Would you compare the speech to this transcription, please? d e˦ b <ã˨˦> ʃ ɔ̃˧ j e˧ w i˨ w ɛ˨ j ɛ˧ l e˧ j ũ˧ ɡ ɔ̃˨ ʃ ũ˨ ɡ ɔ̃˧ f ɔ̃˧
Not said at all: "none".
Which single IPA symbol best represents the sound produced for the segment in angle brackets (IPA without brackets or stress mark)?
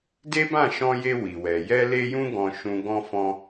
ã˦˨